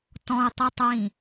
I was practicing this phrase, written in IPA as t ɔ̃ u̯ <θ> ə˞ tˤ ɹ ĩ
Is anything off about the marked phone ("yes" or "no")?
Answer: yes